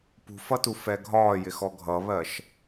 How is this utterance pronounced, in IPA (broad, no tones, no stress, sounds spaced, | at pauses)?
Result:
p ṳ f ʌ t u f ɛ ɡʱ ɒː j ɪ x ɔ ɡʱ ʌ β ɜ ʃ